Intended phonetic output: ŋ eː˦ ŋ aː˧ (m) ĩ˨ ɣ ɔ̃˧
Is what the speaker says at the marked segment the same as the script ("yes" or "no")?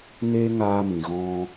yes